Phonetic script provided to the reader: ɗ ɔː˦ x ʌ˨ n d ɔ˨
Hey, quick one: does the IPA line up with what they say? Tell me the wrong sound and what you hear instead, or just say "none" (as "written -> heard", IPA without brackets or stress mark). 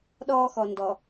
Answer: ʌ˨ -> ɔ˨